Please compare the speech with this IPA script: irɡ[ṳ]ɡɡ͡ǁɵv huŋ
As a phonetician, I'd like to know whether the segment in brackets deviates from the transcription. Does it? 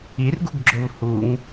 no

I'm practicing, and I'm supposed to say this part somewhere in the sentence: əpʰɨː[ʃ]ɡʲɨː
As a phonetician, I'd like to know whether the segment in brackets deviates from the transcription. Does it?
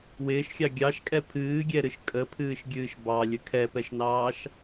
no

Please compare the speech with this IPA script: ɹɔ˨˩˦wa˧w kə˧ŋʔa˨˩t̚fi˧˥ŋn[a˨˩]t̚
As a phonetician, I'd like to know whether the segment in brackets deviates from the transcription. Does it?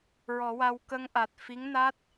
yes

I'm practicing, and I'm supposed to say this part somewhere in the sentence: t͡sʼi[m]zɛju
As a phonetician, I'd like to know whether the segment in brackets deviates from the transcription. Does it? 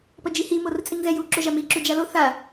yes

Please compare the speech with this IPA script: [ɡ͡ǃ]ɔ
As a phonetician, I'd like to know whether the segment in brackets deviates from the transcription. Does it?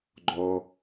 no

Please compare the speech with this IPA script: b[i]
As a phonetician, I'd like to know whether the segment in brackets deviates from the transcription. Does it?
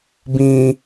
yes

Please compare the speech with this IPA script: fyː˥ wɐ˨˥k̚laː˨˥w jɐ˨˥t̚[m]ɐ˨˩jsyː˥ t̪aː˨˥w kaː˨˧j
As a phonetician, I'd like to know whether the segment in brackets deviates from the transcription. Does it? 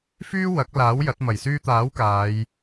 no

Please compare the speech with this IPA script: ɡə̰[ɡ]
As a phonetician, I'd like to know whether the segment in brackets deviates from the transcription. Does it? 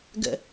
yes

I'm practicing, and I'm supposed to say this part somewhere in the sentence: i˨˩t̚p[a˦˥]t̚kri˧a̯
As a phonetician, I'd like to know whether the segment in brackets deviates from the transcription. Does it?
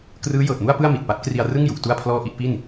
no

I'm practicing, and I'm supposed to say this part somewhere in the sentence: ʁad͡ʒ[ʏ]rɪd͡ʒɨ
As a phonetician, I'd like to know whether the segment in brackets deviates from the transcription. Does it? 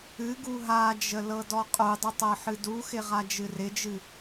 yes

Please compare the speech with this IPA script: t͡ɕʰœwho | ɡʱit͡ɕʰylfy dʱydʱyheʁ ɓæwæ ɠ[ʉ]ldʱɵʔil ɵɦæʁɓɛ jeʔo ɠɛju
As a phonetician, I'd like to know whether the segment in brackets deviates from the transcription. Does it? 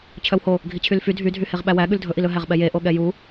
no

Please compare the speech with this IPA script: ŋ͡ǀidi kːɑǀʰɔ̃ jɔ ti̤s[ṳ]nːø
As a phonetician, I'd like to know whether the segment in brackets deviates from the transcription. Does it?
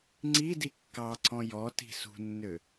no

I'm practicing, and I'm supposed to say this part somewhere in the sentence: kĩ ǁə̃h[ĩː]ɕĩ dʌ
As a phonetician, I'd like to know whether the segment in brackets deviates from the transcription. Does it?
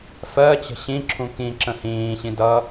no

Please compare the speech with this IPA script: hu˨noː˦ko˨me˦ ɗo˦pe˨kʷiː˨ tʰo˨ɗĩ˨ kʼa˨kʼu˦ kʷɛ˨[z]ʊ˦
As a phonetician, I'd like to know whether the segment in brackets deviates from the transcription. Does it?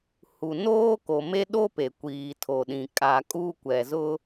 no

